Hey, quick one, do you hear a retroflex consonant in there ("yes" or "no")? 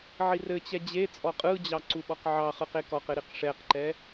yes